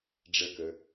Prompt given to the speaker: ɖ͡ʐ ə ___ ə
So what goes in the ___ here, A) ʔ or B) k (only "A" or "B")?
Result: B